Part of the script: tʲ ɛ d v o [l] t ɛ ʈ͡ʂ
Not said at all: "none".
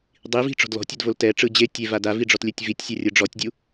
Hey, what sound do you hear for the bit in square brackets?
l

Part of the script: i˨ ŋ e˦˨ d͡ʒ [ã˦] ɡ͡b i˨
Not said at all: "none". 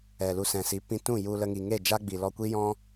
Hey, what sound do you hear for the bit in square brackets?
a˦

